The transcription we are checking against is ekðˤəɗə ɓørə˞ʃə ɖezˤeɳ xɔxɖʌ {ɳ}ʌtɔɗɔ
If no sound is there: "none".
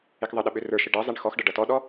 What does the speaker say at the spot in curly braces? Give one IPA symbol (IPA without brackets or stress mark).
ɖ